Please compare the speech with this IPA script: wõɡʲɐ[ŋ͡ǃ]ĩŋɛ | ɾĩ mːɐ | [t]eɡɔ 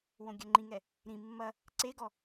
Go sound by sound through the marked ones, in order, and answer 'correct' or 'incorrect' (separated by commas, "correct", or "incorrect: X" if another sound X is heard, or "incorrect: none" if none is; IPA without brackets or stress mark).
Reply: correct, incorrect: ǀ